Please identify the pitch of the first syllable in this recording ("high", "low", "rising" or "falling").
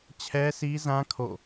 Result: high